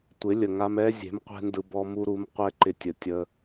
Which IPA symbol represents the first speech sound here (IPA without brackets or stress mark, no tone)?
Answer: tʷ